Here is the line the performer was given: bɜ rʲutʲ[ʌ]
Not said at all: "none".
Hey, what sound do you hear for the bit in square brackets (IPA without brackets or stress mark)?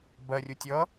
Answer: ʌ